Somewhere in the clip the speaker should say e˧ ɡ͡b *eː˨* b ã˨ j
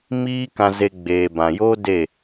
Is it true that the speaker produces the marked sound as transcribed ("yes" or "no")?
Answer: yes